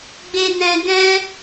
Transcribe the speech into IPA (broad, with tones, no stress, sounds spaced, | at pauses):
ɡ͡b e˧ n ɛ̃˧ ɡ ɛ̃˦